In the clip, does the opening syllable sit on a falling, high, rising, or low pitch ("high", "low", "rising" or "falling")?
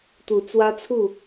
rising